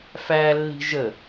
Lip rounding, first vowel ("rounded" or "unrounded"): unrounded